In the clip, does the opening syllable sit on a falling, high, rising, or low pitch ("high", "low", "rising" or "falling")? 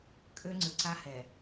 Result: high